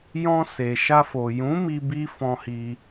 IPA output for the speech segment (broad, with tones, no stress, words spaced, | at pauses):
jɔ̃˧se˨ʃa˧fo˨ jũ˨˦mi˧bi˧ fɔ̃˧hi˧